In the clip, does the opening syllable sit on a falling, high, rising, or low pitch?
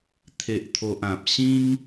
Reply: low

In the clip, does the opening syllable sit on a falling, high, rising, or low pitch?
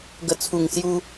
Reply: low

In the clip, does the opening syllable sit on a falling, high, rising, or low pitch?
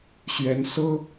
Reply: rising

